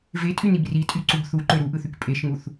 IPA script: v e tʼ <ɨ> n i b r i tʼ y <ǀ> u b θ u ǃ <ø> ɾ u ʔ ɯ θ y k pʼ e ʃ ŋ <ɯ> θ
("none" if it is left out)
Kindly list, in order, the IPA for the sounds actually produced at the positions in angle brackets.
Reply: y, ǀ, ø, u

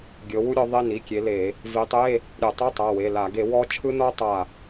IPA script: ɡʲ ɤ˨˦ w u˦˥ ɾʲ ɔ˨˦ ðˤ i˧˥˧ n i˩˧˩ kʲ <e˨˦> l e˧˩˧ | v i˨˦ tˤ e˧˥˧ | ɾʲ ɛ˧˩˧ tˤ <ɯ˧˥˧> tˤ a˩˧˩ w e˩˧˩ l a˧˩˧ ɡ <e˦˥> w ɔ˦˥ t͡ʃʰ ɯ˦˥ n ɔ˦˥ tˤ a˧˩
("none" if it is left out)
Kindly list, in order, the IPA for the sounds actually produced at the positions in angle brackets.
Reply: e˨˦, ɯ˧˥˧, e˧˩˧

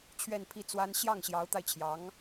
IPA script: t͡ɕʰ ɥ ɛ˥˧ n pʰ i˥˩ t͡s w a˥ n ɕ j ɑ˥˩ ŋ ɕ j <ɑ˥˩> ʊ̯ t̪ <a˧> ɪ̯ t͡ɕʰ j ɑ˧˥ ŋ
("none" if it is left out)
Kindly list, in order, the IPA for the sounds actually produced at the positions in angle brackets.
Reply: ɑ˧˥, a˧

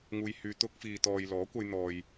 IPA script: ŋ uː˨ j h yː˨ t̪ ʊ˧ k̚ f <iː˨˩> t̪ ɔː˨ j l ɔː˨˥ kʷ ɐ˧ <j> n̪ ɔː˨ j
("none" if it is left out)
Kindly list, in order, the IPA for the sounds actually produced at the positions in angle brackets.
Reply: iː˨, j

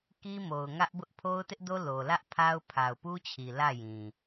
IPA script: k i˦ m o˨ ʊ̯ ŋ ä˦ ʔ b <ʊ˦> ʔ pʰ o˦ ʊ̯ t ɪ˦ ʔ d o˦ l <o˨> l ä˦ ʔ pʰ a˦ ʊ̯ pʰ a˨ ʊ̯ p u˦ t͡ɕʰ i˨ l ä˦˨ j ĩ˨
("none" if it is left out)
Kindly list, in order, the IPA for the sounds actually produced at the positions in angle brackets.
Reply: ʊ˦, o˨

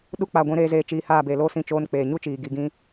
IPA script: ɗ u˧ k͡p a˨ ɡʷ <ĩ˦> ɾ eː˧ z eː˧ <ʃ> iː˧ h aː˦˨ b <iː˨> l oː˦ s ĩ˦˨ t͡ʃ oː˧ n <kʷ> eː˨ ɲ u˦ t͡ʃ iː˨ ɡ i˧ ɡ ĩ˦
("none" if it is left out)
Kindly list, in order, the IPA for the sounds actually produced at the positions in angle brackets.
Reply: ĩ˨˦, t͡ʃ, eː˨, k͡p

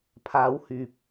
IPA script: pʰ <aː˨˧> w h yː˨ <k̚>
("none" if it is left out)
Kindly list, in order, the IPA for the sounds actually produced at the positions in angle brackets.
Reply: aː˨˧, p̚

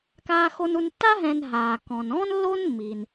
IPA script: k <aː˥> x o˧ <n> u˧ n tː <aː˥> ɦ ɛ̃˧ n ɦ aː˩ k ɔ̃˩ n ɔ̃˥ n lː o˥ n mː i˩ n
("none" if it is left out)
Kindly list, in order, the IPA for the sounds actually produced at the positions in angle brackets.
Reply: aː˧, n, a˥

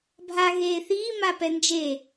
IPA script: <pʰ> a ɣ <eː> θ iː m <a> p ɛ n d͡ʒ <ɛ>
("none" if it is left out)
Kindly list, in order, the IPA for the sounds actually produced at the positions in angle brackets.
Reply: bʱ, eː, a, e

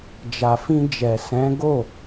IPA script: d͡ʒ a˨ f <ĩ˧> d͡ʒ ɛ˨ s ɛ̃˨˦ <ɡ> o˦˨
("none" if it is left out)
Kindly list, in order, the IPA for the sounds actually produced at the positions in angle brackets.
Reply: ĩ˧, ɡ

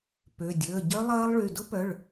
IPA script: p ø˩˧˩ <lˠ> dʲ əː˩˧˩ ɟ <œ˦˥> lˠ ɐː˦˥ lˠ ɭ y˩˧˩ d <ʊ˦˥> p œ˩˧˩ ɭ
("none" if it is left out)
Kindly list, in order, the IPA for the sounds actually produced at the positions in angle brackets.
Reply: none, œ˦˥, ʊ˦˥

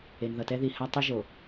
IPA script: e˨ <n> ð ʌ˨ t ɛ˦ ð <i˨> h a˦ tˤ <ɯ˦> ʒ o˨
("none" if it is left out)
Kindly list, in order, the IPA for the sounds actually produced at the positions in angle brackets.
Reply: n, i˨, ɯ˦

